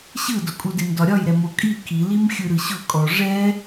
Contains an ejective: yes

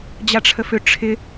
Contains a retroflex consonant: yes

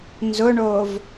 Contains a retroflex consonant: yes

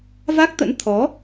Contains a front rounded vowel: no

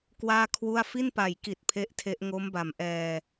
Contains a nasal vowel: no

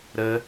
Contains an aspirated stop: no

